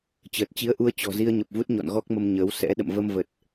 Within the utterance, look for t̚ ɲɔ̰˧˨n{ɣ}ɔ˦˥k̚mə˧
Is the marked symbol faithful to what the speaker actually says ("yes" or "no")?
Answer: yes